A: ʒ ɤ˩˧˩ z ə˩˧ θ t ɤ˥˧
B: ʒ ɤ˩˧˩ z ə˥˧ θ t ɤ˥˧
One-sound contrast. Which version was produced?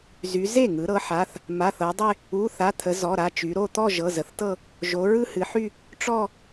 A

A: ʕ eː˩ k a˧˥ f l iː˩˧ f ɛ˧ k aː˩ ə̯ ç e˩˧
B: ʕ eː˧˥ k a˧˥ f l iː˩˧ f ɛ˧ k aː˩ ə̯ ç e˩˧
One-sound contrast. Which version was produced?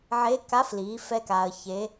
B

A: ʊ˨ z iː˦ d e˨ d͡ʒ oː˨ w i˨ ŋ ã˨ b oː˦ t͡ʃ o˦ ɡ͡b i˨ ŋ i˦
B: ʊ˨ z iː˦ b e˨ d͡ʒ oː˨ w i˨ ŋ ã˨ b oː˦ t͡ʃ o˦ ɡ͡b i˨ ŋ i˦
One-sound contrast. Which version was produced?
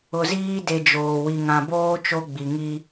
A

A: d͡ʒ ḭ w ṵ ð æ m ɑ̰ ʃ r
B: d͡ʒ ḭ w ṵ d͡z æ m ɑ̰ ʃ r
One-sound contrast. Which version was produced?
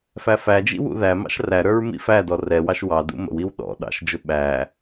A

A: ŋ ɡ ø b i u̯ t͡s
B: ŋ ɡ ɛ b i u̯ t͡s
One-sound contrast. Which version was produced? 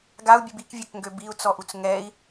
A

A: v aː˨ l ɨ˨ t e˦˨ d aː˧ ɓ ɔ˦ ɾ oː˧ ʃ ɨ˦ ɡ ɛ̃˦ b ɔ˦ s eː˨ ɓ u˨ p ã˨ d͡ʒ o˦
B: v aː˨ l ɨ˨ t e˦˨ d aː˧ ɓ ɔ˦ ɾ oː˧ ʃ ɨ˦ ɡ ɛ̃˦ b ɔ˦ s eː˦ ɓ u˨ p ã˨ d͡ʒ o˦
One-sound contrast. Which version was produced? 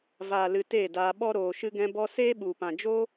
B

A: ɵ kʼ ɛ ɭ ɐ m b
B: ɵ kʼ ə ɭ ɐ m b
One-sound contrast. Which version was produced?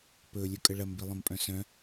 B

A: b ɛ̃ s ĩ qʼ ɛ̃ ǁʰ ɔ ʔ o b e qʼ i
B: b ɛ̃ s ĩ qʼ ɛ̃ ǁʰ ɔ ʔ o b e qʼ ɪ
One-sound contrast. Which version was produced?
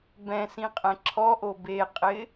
B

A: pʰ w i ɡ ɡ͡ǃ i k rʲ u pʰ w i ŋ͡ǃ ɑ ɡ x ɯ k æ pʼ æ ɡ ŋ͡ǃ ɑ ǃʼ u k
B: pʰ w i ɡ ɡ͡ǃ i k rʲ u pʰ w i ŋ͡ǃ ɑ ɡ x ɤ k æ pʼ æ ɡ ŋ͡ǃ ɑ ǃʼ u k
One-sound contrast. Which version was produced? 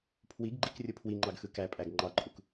A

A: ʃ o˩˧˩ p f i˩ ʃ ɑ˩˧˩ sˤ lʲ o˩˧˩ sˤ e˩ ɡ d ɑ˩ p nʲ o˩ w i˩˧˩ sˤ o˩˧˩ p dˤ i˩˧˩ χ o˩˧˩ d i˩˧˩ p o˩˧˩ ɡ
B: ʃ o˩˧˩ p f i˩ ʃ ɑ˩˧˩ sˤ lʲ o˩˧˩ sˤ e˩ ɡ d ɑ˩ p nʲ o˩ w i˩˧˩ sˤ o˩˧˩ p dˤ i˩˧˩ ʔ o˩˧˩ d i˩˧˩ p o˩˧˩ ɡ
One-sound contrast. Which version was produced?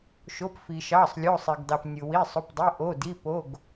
B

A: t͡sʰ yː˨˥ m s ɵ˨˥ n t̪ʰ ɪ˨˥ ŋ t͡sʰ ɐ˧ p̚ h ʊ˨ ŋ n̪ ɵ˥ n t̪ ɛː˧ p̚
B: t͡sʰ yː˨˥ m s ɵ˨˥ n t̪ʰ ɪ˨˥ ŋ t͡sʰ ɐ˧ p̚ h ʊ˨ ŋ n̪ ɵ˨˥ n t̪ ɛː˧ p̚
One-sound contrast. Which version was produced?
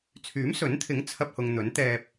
B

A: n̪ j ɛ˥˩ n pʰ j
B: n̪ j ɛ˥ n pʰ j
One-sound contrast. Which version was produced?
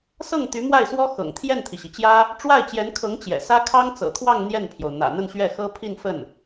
A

